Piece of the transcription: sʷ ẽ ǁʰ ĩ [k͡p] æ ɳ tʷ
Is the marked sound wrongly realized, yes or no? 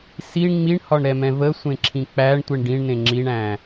no